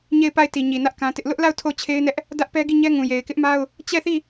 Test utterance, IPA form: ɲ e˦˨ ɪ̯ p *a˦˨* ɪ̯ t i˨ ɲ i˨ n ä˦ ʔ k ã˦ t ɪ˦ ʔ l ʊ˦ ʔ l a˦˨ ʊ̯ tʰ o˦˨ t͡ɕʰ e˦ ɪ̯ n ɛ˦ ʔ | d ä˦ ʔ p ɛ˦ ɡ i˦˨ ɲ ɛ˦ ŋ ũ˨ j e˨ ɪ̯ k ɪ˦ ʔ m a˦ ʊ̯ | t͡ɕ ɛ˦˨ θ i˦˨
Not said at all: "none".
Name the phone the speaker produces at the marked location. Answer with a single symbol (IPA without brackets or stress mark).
a˦˨